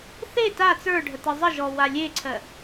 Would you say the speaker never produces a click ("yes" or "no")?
no